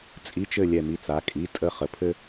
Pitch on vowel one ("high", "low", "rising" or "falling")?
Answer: rising